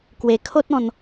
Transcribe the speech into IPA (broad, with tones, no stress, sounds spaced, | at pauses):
k w e˧ kʰ o˦ t̚ ɔ̃˧ n